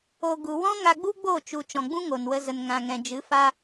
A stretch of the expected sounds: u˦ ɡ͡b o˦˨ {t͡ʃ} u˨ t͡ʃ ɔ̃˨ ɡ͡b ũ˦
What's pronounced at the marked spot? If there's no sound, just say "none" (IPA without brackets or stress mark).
t͡ʃ